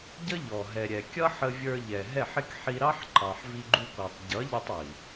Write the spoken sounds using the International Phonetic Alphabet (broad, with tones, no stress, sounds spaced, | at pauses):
ɟ ə˦ ʎ ɔ˨ ɦ ɛ˨ ɾʲ ɛ˨ kʲ ʌ˦ ħ ə˧ vʲ ə˞˧ ʎ ɛ˨ ɦ ɛ˦˨ ħ ɪ˦ k ħ i˧ ɾ ɑ˦ ħ ǃ ɑ˨ ħ v i˧ ɡ͡ǃ u˧ k ɔ˨ tˤ ɟ ʌ˨˦ ʎ ə˧ tˤ i˨